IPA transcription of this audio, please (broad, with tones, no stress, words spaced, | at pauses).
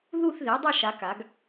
ðu˥˧θðe˩˥dˤa˥˧ʃ a˧˥ka˩˥ɡ